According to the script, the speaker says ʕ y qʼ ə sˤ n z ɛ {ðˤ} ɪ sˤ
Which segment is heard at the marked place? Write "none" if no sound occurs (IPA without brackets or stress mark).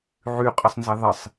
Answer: ðˤ